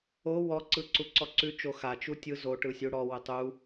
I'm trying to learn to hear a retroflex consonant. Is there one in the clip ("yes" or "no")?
yes